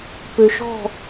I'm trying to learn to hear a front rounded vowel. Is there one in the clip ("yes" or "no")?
yes